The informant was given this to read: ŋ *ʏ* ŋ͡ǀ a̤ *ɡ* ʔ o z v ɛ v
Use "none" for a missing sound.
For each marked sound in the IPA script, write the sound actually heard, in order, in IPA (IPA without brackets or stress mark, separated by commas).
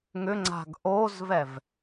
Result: ʏ, ɡ